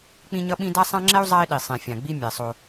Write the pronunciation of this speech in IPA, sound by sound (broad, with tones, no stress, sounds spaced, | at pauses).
k͡p ĩ˦ ɲ ʌ˦ ɓ ĩ˦ d a˦ sˤ ã˦ ŋ͡ǁ ɛ˦ u̯ zˤ a˦ i̯ ɗ i˨ sˤ ẽ˨ fʲ ã˨ ɡ͡b i˦ mʲ ɛ˨ sˤ o˦